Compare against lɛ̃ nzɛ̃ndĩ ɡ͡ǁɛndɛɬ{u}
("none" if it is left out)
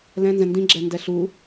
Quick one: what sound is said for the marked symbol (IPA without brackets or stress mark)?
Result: u